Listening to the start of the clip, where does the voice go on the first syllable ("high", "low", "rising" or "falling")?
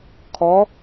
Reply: rising